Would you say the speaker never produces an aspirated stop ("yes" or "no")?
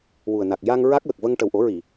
yes